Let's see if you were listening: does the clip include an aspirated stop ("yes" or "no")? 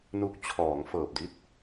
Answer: yes